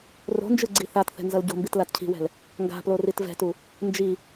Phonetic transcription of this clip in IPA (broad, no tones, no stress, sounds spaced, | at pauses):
r o̤ n d͡ʒ ɯ ɡ͡ǀ i θ a t θ ɛ̤ n z ʌ l ɟ o̤ m b i t l a t cʰ i̤ w ɛ̤ l | ŋ ɡ a̤ p l o r i t v ɛ̤ t u | n d͡ʒ i